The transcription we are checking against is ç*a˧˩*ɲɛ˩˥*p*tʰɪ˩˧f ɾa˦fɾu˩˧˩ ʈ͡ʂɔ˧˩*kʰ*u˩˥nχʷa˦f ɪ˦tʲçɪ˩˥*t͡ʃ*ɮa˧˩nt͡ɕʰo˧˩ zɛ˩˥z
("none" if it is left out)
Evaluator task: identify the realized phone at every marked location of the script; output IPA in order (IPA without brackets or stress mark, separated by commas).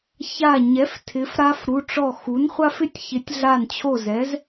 a˧˩, f, x, tʲ